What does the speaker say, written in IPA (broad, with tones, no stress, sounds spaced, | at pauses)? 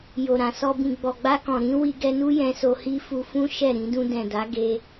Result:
j o˨ ɾ ã˨ s ɔ˧ b ĩ˨ ɡ͡b ɔ˨ ɡ͡b a˧ k ɔ̃˨ ɾ ĩ˨˦ w i˧ ɡ ɛ˧ n u˦ j ɛ̃˧ s o˧ h i˦ f u˧ f ũ˦ ʃ ɛ˦˨ ɾ ĩ˧ d ũ˧ d ɛ̃˨ d a˨˦ ɡ e˧